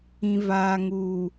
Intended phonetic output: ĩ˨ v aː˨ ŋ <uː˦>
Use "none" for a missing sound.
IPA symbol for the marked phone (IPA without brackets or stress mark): uː˨